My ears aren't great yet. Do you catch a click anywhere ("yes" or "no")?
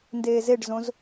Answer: no